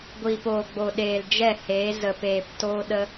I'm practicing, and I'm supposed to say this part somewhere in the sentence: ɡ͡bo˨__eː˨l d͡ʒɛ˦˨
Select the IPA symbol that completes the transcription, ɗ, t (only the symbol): ɗ